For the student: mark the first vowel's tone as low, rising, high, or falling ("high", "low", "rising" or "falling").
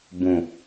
low